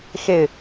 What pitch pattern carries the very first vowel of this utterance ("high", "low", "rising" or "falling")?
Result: falling